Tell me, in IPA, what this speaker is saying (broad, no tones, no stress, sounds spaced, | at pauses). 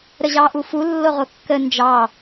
ɾ ə ʑ ɑ ʔ u f u lː o ʁ o kː ə n d͡ʒ ɑ